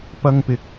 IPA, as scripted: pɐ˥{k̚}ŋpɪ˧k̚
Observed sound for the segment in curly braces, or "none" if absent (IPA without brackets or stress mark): none